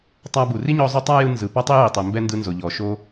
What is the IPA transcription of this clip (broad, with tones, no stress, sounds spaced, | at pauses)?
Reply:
tˤ a˧ b u˩ r i˥ ɲ ɔ˧ zˤ o˥ tˤ a˥ j ɯ˧ n z ɯ˩ p ɔ˥ tˤ i˥ j i˩ tˤ ɛ˩ m b ɛ˥ n d ɯ˧ n z o˩ ʎ ɔ˩ ʃ o˧